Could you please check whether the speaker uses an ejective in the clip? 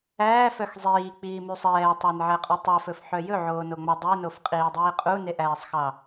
yes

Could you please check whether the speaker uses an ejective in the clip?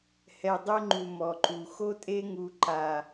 yes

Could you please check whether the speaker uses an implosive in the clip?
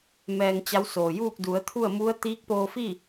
no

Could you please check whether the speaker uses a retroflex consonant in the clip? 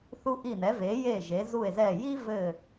no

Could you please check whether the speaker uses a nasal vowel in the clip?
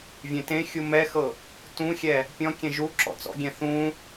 yes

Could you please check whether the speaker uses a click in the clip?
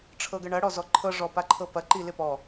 yes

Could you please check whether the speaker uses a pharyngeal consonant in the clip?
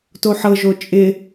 yes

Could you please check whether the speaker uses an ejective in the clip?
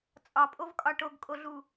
yes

